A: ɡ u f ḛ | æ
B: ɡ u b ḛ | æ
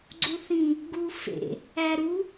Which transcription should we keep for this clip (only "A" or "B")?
A